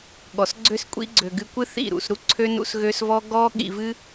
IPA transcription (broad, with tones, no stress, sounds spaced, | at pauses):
ɠ ɔ˨ s ɡ͡ǀ ø˦ s kʷʼ ḭ˦ ɡ͡ǀ ø˨ ɡ ɨ˧ kʷ ɨ˦ θ ḭ˦˨ ɾ ṵ˨ s ɾ u˦ ǀʰ ø˦ n ṵ˦ s ɣ ø˦ s v ɔ˦ ɡ ɔ˦ ɠ ḭ˧ v ɨ˦